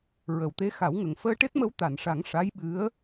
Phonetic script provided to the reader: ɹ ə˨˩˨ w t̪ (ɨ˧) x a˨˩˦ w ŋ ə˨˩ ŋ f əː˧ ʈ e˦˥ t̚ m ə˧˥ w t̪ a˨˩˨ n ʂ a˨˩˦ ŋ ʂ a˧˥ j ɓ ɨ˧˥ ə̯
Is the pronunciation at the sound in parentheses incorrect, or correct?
incorrect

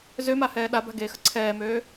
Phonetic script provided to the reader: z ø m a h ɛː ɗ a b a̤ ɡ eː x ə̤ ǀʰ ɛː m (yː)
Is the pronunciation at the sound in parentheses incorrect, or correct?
incorrect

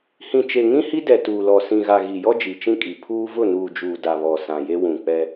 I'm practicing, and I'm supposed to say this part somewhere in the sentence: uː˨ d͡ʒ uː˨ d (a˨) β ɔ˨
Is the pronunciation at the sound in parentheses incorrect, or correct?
correct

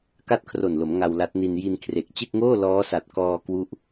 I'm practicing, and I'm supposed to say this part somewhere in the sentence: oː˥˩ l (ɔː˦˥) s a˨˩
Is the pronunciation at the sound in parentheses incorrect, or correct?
correct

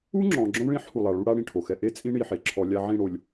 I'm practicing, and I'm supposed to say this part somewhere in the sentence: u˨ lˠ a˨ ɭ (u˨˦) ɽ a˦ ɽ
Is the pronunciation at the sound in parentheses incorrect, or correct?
incorrect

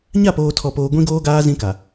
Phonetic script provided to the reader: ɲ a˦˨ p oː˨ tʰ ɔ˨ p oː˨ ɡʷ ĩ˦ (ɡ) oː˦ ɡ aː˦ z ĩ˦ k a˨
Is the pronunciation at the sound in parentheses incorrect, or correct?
correct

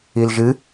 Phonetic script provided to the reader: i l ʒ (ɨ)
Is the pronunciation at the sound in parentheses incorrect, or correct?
correct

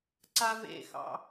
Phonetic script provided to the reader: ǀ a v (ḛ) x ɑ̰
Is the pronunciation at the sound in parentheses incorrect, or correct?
correct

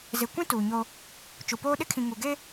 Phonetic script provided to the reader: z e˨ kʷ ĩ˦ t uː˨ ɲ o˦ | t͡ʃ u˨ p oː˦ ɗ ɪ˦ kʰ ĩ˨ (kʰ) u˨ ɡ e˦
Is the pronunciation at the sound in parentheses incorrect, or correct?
incorrect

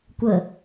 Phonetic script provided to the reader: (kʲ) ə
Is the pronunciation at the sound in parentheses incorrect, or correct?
incorrect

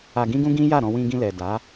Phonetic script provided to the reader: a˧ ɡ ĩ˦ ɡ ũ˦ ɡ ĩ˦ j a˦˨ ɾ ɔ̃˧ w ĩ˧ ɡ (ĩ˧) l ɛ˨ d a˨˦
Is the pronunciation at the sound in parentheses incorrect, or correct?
correct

